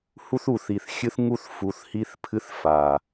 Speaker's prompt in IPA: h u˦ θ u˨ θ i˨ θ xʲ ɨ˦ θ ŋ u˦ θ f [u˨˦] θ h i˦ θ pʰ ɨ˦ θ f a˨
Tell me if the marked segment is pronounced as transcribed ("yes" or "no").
yes